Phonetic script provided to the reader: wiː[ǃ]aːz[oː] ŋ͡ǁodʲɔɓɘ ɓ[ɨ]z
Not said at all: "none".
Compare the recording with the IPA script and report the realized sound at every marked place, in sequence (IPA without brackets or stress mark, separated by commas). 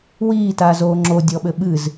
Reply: t, oː, ɨ